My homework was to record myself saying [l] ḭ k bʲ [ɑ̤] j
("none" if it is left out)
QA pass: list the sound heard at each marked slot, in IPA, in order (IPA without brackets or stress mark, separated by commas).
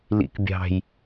l, ɑ̤